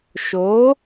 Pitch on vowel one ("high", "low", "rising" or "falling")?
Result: rising